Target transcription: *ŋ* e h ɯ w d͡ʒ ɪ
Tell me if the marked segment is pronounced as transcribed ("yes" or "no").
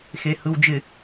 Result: no